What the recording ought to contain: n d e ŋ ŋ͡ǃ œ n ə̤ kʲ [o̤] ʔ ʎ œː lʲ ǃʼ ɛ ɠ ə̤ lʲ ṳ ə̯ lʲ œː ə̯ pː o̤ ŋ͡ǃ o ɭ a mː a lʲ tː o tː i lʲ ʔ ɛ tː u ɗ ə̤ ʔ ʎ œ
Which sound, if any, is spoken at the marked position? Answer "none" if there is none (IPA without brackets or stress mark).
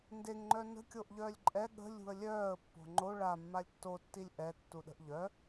o